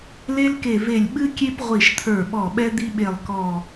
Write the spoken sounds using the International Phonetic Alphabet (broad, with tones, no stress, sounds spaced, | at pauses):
l e˦ l k e˧˩ v e˧˩ lʲ ɓ ɨ˦ kʲ e˦ p ʁʷ i˧˩ ʃ t̪ʰ ə˞˧˩ ɓ ɔ˧˩ ɓ ɛ˦ d̪ i˦ ɓ e˧˩ lˠ k ɔ˧˩